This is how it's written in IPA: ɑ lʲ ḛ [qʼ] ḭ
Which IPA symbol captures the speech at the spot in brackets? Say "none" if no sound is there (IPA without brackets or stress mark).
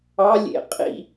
qʼ